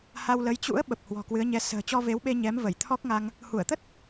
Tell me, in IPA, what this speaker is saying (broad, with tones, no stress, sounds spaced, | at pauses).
h a˧ w l ə˨˦ j t͡ɕ ṵ˧˥ ə̯ ɓ ə˨˩ p̚ h w ɔ̤˨˩ k w ɨ˨˦ ə̯ ɲ ɛ˧ s ə̤ː˨˩ t͡ɕ ɔ˧ v e˨˦ w ɓ e˧ ɲ ɛ˨˦ m v ə˧˩ j t̪ʰ ɔ˦˥ k̚ ŋ a˧ ŋ | h u˧˩ ə̯ t̪ ə˦˥ t̚